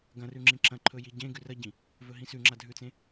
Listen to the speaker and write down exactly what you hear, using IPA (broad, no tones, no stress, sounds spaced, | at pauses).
ɡ ɐ̃ r ʉ ŋ͡ǁ ĩ ǁ ɐ̃ ǃʰ ɵ j i ɟ ẽ ɡ ʉ r ɐ ɟ ĩ | v ɵ ɦ ĩ s ʉ ŋ͡ǁ a dʱ ʉ t͡s ẽ